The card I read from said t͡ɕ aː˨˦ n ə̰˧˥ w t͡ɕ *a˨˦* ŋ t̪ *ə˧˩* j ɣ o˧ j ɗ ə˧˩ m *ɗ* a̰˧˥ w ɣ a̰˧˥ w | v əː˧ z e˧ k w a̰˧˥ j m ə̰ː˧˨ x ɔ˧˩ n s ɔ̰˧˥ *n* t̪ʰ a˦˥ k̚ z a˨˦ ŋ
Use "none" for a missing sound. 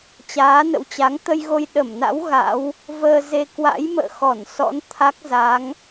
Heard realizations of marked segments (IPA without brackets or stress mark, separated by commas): a˨˦, ə˧, n, n